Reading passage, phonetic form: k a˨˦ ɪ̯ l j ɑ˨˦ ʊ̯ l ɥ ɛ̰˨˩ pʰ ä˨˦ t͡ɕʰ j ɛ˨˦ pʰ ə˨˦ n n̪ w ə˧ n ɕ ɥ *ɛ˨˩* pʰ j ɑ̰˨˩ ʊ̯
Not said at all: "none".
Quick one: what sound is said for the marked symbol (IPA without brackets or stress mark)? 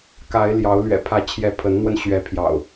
ɛ˨˦